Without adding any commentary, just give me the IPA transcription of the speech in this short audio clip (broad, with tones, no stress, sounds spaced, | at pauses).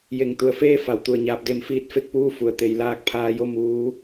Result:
j e˧˩ ŋ t̪ u˧˩ ə̯ f eː˥˨ f a˩ w t̪ u˧˩ ə̯ ɲ aː˧ p̚ d e˧˥ m f iː˧˥ t̚ f e˧ k̚ p uː˥˨ f u˩ ə̯ t̪ e˩˧ j l aː˧ k̚ pʰ aː˧ j o˥˨ m uː˧˥